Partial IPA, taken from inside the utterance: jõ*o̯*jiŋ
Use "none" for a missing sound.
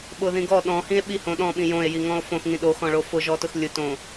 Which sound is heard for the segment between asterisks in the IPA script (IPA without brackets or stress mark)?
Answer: e̯